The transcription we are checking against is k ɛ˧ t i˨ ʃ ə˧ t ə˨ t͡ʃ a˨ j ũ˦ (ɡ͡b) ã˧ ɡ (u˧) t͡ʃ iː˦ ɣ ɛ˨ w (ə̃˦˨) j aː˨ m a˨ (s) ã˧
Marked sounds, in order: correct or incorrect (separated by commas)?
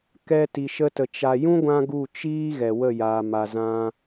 incorrect, incorrect, incorrect, incorrect